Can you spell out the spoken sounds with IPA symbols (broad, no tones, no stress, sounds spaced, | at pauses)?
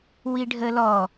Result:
w i ɖʱ ə l ɔ